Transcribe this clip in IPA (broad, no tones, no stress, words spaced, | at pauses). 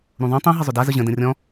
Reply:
ɾũðˤũ tˤũ ɦəzˤʏda zəʑə̃ də̃rʲɔ̃